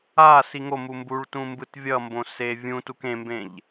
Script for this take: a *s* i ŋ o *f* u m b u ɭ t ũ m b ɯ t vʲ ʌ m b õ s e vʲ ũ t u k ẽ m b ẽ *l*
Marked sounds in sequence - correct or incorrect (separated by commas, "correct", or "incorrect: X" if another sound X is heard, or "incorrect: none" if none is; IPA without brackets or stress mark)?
correct, incorrect: m, incorrect: ʎ